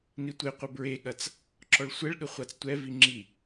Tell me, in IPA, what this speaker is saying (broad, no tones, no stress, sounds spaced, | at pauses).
n i tʷ e qʷ ɘ b ɹ e ɠ ɐ t͡s | ǁ ɔ ɭ sʷ ɛ ɭ ɠ ɘ χʷ a t͡s tʷ ɛ v i ŋ͡ǁ i